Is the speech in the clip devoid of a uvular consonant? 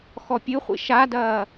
no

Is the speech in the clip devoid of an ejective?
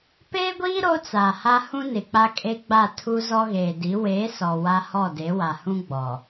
no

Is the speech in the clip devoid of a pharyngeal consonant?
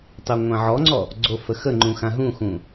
no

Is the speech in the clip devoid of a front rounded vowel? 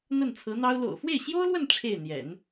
yes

